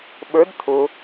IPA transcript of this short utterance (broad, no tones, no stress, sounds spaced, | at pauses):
ɓ ə˞ d t̪ʰ ʊ